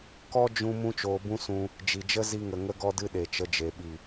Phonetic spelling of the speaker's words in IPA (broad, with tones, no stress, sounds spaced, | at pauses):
k ɔ˦ d͡ʒ ũ˦ m ũ˦ t͡ʃ oː˧ b ũ˦ s ũ˧ | d͡ʒ i˨ d͡ʒ ə˦ z i˧ ŋ ə˨ ŋ ə˦ ɡ ɔ˦ d ɨ˦ ɗ e˨ t͡ʃ ə˧ d͡ʒ e˨ ɓ i˨